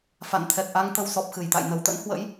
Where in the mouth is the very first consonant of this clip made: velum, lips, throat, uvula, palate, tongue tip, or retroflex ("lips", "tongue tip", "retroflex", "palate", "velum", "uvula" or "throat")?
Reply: lips